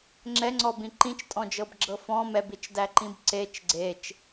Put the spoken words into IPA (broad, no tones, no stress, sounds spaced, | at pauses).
ŋ͡ǁ ɛ ŋ͡ǀ ɔ b ĩ ǃ ĩ t͡ʃ tʼ ɔ̃ d͡ʒ ɤ b ɡ͡ǁ ɤ f ɔ̃ m ɛ b i t͡ʃ d æ ǃ ĩ b ǀ e t͡ʃ ɡ͡ǀ e t͡ʃ